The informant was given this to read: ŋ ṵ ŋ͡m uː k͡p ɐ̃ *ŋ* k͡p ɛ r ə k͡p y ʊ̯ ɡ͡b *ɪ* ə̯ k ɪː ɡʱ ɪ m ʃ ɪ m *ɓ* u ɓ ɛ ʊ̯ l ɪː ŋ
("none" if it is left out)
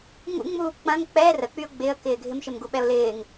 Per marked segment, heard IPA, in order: ŋ, ɪ, ɡ

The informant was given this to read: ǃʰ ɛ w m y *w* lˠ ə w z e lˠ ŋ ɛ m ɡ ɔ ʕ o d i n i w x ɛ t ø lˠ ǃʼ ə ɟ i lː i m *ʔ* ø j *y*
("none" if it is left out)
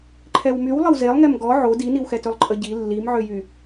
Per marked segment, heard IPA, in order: w, ʕ, y

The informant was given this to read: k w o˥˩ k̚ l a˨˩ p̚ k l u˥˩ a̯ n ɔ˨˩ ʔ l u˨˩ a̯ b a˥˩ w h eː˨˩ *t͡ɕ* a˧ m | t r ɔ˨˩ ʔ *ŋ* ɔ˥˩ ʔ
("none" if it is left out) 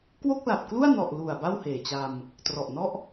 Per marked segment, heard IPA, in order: t͡ɕ, n

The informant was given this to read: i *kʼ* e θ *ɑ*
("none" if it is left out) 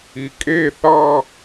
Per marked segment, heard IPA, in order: kʼ, ɑ

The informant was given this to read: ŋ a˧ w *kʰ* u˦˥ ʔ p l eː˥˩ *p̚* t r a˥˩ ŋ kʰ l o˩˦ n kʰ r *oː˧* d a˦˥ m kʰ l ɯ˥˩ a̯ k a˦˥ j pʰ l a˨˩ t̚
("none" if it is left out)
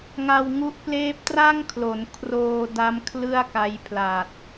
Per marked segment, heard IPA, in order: ŋ, p̚, oː˧

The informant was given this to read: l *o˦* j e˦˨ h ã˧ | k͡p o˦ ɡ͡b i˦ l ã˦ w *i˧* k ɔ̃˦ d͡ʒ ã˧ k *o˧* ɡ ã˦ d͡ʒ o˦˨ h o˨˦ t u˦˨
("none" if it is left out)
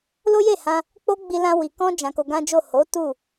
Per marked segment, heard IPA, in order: o˦, i˧, o˧

